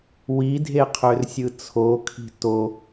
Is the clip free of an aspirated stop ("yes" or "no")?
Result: no